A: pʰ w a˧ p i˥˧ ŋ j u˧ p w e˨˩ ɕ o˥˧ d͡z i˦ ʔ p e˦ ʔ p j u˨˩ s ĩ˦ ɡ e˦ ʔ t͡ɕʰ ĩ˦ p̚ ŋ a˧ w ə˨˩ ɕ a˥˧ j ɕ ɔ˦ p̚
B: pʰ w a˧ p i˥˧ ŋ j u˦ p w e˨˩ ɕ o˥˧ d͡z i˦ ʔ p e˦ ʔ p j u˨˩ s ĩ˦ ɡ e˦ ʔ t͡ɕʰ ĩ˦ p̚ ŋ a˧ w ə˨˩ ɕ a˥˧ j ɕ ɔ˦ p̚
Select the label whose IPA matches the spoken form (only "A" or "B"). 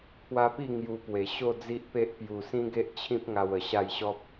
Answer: A